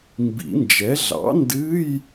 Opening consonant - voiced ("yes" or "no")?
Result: yes